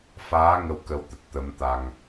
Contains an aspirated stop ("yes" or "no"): no